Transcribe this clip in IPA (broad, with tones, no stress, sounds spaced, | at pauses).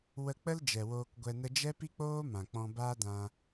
w ə˧ k͡p ə˦ l d͡ʒ ɛ˨ w oː˧ k ɡʷ ɛ˧ n ə˦ d͡ʒ ɛ˦ p i˦ k͡p oː˦ m ã˨ k͡p ɔ̃˧ b aː˦ d ã˧